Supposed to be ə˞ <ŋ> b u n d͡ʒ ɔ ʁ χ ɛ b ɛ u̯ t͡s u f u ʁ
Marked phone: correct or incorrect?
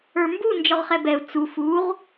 incorrect: m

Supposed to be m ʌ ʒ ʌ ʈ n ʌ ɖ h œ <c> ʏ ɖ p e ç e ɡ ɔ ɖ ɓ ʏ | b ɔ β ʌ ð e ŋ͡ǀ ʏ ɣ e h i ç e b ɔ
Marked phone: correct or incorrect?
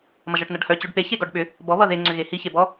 correct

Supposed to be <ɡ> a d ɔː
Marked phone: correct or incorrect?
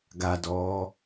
correct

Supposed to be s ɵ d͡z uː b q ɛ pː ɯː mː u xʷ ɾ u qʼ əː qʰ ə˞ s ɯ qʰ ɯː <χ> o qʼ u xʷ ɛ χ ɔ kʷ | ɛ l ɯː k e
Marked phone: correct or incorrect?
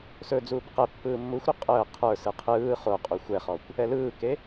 correct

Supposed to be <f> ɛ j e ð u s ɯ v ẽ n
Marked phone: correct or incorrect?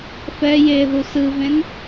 correct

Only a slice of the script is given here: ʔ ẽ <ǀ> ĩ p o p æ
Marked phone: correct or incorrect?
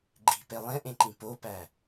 incorrect: ǃ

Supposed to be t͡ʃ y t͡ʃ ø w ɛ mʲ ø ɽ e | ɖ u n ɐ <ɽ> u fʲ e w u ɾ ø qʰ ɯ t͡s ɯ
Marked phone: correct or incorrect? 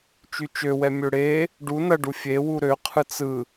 incorrect: ɖ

